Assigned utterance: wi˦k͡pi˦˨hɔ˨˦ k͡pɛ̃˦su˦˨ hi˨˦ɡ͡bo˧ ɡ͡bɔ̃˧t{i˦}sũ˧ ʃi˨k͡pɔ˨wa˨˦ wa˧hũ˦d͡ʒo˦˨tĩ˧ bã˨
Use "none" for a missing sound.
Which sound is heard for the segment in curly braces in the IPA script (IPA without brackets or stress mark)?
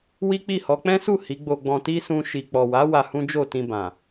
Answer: i˦